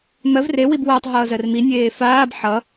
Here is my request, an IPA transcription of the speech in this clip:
m ɜ v r e w i b w ʌː tˤ ɦ ʌː z ɜ r m i nʲ eː f aː b ħ ʌ

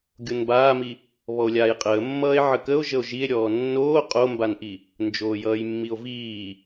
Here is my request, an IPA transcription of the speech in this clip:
ɡʲ o n b aː m i | β ɔ o̯ lʲ aː j qʼ əː mː ʌː e̯ ʕ ə k ə o̯ ʒ ə o̯ ʒ i e̯ ɾʲ ɔː nː oː qʼ o m b a n ʔ i | n d͡ʒ oː j ʌː j mː i o̯ v iː

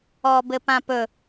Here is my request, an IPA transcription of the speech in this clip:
ɔ b ɘ p ã p ɵ

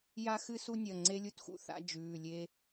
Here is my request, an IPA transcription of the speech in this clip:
j a˦ x ɨ˦ s u˦ nʲ ɐ˩˧˩ ŋ͡ǀ e˦ lʲ u˦ t x ṵ˦ θ a̰˦ d͡ʒ ʉː˩˧˩ lʲ e˦

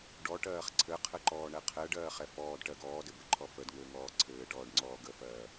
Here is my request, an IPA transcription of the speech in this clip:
ɖ ɔ ʈ ɜː χ ǀʰ ɘ qʰ ɘ ǃ ɔː ɳ ɛ qʰ ɛ ɖ ɜː χ ɛ f ɔː d ʈ ɜ ɡ ɔː d ɘ b ɘ ǃʰ ɔ f ə d ŋ ɘː ŋ ɔː ǀʰ ɘː ʈ ɔː ɖ ŋ͡ǀ ɔː ɡ ə f ɜː

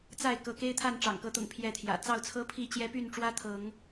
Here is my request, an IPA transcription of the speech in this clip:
t͡s a˥˨ ɪ̯ k ɤ˨˦ k e˦ ɪ̯ t̪ʰ a˥˨ n ʈ͡ʂ ɑ̰˨˩ ŋ k ɤ˨˦ t̪ ʊ̰˨˩ ŋ pʰ j ɛ˥˨ t̪ʰ j ä̰˨˩ t͡s ɑ˥˨ ʊ̯ t͡sʰ ɤ˦ pʰ i˥˨ t͡ɕ j ɛ˦ p y˥˨ n ʈ͡ʂ w ä˦ t̪ʰ ɤ˨˦ ŋ

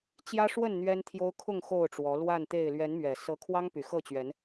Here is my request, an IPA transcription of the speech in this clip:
t͡ɕ j ä˦ ʂ w ə˥˨ n n̪ ɥ ɛ˦ n t̪ʰ j o˦ ʊ̯ kʰ ʊ˥˨ ŋ x o˥˨ ʊ̯ ʈ͡ʂ w ɔ˨˦ l w a˥˨ n t̪ e˥˨ ɪ̯ l ɥ ɛ˨˦ n m ɥ ɛ˨˩ s ɤ˨˦ kʰ w ɑ˦ ŋ p y˨˩ x ɤ˥˨ t͡ɕ ɥ ɛ˨˦ n

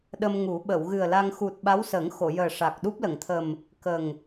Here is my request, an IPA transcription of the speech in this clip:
ɗ ə˧ m ŋ u˨˩˦ ɓ ə˨˩˨ w ɣ ɨ˨˩ ə̯ l a˧ ŋ x u˨˩ t̚ ɓ a˧˥ w s əː˨˩˦ ŋ x o˨˩˨ j əː˨˩ ʂ a˨˩ k̚ ɗ u˦˥ p̚ l ə˨˩˨ ŋ t̪ʰ ə˨˩ m | k ə˨˩ ŋ

